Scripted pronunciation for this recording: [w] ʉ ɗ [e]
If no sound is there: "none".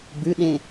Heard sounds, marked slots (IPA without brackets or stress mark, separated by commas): b, ẽ